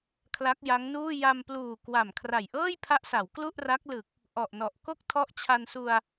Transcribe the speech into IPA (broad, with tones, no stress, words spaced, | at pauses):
kʰla˦˥k̚ja˦˥ŋnuː˥˩ ja˧mpluː˨˩ kwa˨˩m kʰra˨˩jʔɤː˥˩jpʰa˦˥ʔsa˩˦w klu˥˩ʔra˦˥k̚ lɯ˨˩k̚ | ʔɔ˨˩ʔnɔ˨˩ʔ ko˥˩k̚tʰɔ˦˥ʔ t͡ɕʰa˧nsu˧a̯